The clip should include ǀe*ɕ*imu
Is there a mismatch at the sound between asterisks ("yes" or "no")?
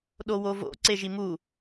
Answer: yes